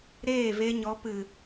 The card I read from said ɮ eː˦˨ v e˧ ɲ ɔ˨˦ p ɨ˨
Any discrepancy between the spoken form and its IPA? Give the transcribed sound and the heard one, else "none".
ɮ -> ɾ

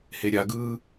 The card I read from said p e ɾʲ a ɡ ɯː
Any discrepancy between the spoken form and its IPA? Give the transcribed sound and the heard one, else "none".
p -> h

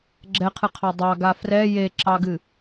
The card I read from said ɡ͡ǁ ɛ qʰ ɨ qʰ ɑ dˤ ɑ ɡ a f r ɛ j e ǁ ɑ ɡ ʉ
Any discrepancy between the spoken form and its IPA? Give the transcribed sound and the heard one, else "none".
ʉ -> ɨ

